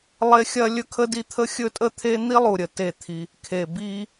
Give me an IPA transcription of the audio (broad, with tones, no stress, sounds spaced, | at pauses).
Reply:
lˠ e˦ xʲ ɐ˦ lʲ ɵ˦ kʰ ə˦ d i˦ t̪ʰ ə˦ xʲ ɵ˦ tʼ ə˦ t̪ʰ e˦ n̪ i˦ lˠ u˨ ɾʲ ə˨ t e˦˨ t̪ʰ i˦ | kʰ e˨ b i˦